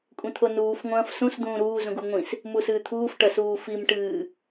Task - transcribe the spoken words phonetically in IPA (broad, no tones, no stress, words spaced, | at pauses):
kʷʼĩt̪ʰonuːf ŋʷɐ̃ːfsũs d̪ũːɾuː zũɡuŋʷĩs | musɨːt̪ʰuːf ʈɐsuːfim ʈɨː